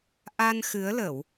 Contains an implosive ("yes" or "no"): no